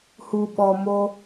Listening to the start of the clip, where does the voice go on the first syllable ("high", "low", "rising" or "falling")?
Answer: low